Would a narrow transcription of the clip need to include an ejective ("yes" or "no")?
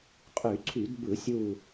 yes